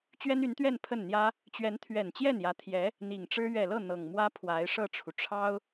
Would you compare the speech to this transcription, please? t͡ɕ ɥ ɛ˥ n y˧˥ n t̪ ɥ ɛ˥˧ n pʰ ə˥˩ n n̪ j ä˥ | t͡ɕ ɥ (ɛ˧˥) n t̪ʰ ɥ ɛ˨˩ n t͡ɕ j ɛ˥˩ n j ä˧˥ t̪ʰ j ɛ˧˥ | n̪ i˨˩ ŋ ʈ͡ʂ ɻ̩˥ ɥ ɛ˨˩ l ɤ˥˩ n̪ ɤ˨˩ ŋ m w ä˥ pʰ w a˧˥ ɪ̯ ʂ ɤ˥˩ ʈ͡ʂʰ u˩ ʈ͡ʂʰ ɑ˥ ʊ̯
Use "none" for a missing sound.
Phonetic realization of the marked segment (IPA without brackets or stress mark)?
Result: ɛ˧˥